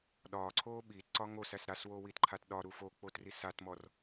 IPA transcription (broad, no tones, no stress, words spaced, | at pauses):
ɗɒːǀʰoː ɓiːtǀɒ ŋosæs ɾaswoːwitǃʰat ɗɒɾu fok͡potri satmɔr